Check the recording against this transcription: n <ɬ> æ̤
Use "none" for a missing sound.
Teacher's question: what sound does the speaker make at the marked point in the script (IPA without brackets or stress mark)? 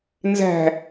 z